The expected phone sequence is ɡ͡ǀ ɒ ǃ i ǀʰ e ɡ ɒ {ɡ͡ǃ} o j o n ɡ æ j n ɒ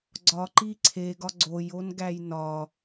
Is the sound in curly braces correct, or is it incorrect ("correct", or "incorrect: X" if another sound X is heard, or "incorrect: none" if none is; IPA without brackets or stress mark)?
incorrect: ɡ͡ǀ